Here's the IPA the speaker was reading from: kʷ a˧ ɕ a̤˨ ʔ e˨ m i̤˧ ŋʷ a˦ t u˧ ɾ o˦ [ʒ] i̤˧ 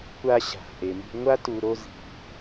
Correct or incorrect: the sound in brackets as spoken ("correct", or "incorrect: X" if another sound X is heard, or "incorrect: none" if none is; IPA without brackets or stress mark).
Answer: incorrect: z